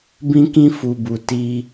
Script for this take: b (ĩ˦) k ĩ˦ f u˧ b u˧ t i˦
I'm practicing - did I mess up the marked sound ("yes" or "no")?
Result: no